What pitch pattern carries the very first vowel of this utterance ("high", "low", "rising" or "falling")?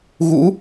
rising